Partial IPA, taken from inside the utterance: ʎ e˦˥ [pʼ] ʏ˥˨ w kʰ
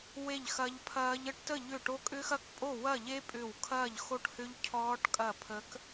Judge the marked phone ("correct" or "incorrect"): correct